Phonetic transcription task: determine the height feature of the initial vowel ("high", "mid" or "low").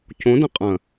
mid